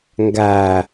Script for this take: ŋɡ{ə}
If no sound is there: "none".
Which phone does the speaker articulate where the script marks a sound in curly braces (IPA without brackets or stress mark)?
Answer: æ